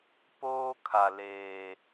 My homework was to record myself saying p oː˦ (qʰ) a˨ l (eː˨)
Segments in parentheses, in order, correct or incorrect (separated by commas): incorrect, correct